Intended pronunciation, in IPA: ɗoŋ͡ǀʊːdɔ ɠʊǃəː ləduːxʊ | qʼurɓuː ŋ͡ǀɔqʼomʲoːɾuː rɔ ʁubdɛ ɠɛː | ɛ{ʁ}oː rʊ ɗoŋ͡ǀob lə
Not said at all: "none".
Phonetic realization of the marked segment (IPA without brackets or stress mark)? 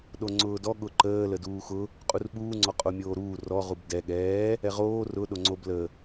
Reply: ʁ